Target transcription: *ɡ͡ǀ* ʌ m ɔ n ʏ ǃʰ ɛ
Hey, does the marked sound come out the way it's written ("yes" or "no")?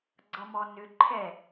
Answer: yes